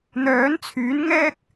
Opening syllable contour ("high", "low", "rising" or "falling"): rising